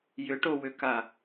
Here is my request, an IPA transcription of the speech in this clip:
j ʏ ʈ o w ʏ k a

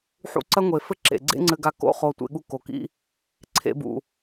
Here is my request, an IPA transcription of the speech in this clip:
ħ ṵ˧ ǀ ɐ˦ ŋʷ e˨ f ɘ˦ ǁ ḛ˨ ɡ͡ǀ ḛ˦ ŋ͡ǀ ɘ˧ ɡ a˧ k o̰˦ χ o˧ tʷ ḛ˧ ɠ u˧ k o˨ k ḭ˦ | ǀʰ ḛ˦ b ṵ˧

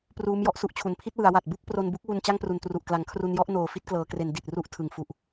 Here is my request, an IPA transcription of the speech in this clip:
p r uː˦˥ m j ɔ˥˩ ʔ s u˦˥ ʔ t͡ɕʰ u˩˦ n pʰ i˥˩ t̚ w ɯ˩˦ a̯ w a˨˩ t̚ b u˥˩ k̚ p r o˧ n b u˦˥ k̚ w u˧ n t͡ɕ a˥˩ ŋ p r u˨˩ n t r u˨˩ ʔ k l a˨˩ ŋ kʰ r u˧ n j ɔ˥˩ ʔ n oː˨˩ f i˦˥ t̚ k l ɤː˩˦ k r e˩˦ n d i˨˩ t̚ r u˦˥ ʔ tʰ ɯ˨˩ ŋ f u˨˩ ʔ

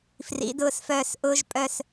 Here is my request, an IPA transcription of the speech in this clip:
f r ḭ˩˧ d ʊː˧˩ s f œː˧˩ s ʔ ʊː˥ ʒ pʼ œ˥˧ s

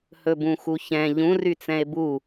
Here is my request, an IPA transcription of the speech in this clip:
h ɵ b ũ x u ç ɛ̃ ʎ ũ r y t͡s ɛ̃ e̯ b u

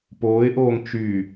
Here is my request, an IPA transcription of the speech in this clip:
p oː ɪ̯ ʔ oː ŋ t͡ʃ y

